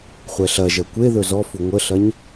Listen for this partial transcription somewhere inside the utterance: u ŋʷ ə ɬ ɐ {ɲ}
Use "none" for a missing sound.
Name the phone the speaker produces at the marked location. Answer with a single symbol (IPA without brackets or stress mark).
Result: ɲ